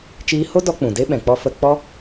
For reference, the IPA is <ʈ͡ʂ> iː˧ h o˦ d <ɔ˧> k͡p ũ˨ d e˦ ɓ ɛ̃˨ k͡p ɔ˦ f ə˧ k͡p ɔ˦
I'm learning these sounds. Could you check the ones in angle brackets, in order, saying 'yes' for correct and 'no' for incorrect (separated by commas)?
no, yes